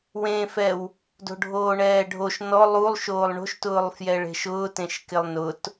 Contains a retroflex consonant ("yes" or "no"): yes